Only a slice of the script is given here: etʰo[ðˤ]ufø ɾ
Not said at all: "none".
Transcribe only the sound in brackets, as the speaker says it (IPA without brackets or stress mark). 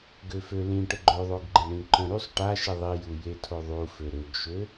ðˤ